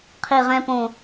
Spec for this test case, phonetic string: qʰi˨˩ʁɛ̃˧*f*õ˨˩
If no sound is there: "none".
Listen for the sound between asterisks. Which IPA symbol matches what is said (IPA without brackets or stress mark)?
p